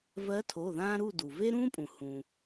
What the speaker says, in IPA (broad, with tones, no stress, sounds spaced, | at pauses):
v ɜ˧˥ tʰ o˩˧˩ ð ãː˥ ɾ u˥˨ d u˩ v e˥ ɾ ũː˥ pʼ ũ˩ h ũ˩